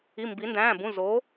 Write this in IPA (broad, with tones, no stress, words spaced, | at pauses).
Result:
i˩˧˩mbi˩˧ndæ̃ː˩˧˩bũ˩˧˩ zo˩˧